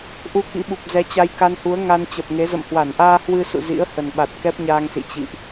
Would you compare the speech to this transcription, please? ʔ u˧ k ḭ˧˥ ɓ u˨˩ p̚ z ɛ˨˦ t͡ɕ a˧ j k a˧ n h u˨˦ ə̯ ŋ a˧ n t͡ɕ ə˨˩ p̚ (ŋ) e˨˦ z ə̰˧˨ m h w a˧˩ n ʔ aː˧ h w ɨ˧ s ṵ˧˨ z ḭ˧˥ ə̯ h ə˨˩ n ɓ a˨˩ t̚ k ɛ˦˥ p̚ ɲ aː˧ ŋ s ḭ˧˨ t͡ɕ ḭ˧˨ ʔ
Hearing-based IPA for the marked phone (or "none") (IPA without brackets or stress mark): ŋ